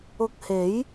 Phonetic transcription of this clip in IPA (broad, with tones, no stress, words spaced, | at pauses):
ʊ˧k̚he˨˥j